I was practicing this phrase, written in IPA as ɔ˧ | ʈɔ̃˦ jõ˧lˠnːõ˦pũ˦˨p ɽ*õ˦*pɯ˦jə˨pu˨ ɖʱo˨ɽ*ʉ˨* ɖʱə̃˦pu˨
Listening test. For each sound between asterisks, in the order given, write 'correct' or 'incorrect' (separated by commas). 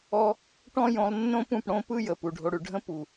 correct, correct